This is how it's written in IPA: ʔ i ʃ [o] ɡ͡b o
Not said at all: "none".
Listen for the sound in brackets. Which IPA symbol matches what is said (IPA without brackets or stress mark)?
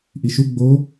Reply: u